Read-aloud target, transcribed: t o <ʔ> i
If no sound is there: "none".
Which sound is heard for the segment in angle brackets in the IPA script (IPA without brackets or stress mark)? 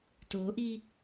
ʔ